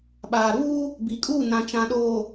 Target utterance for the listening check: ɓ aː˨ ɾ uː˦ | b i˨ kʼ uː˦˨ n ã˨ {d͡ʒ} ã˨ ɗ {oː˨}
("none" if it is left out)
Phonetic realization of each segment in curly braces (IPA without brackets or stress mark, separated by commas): t͡ʃ, oː˨